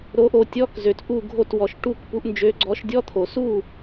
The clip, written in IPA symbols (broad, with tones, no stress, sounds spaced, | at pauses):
ɾ o˨˦ ʔ o˨ tʲ ɔ˧˥˧ k z ø˨ t ʔ u˥˨ ɡʱ o˥˨ t w ɔ˨ ʃ ʈ u˥˨ k p u˨˦ ʔ n d͡ʒ ø˨˦ ɡ͡ǀ ɔ˨˦ ʃ dʲ ɔ˧˥˧ t̪ʰ o˨˩˦ s u˥˨